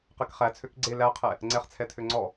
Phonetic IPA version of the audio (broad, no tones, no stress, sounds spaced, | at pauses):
q ɛ k χ æ t͡sʰ ø k ɡ͡ǀ e l æ qʰ ɛ | ŋ͡ǀ ɛ χ t͡sʰ ɛ tʰ ø ŋ͡ǀ ɔ